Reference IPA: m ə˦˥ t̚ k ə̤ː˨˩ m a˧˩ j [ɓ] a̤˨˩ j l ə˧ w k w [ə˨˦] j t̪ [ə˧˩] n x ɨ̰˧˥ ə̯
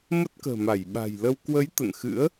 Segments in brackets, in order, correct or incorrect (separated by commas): correct, correct, incorrect